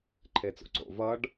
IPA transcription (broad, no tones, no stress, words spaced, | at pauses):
ǃʰet͡so̰ǀo̰ vʌɖ